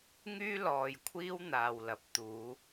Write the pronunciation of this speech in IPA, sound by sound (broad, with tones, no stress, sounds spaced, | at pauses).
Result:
ŋ yː˥ l ɔː˨ j kʷʰ iː˥ w n̪ aː˨ w l ɐ˨˥ p̚ t̪ uː˨˧